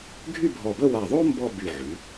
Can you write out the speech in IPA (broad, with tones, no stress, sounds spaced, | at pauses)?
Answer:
ɡʱ y˥˧ bʱ ɔ˧˩ b ə˥˧ w a˧˩ ðˤ o˥ m b ɔ˥˧ b y˧˩ ʕ y˩˧